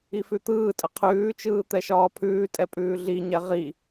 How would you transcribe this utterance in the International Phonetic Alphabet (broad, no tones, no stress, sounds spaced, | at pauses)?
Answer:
i f ʉ t̪ ɯː tʼ ə qʰ ʉː t͡ʃ ɯː t̪ ɛ ʃ ɒː pʰ ʉː tʼ ɛ pʼ ʉː ɮ i ɲ ɛ ʁ i